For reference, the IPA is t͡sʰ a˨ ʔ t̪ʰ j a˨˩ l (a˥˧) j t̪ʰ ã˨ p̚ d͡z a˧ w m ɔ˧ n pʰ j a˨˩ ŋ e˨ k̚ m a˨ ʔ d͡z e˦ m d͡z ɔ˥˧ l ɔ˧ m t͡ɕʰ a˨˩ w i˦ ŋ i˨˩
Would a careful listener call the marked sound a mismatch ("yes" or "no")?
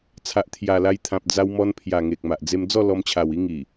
yes